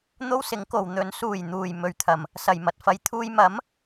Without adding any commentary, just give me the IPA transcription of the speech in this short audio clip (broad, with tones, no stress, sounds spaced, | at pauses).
n̪ o˥ w s ɪ˨˥ ŋ k o˨ w n̪ ɵ˨˥ n s uː˨˩ j n̪ uː˨˩ j m ɵ˨ ɥ t̪ʰ ɐ˨˩ m | s ɐ˨˩ j m ɐ˨ t̚ f ɐ˨ j t̪ʰ uː˧ j m ɐ˨˥ m